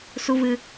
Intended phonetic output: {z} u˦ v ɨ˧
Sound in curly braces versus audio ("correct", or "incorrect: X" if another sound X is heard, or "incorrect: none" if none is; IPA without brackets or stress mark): incorrect: s